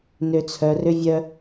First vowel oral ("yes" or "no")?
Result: yes